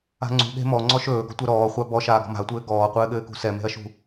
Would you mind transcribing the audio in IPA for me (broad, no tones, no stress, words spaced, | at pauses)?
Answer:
a̤ŋ͡ǀṳɠe̤ mɔŋ͡ǀɔʃ ɵːɡɔ̤tʷɜ ɾɔːχʷa bɔ ʃaːɡɔ̤ma̤ɐ̯tʷɘː ɡɔːqʷɘːɠɘːkṳ sɛme̤ɐ̯ʃṳ